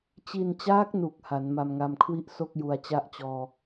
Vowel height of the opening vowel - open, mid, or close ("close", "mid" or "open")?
close